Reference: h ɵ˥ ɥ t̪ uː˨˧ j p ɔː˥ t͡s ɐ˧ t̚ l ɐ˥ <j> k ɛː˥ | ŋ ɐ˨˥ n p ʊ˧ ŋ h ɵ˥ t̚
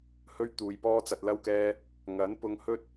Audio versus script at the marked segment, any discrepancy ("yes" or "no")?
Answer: yes